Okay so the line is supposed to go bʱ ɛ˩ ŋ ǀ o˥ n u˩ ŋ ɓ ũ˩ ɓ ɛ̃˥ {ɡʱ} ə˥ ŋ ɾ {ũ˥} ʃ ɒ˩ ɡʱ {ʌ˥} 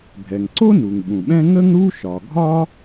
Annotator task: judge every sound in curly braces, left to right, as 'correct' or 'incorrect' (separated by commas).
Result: incorrect, incorrect, incorrect